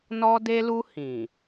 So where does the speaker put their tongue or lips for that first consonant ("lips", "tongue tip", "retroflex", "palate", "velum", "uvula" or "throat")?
tongue tip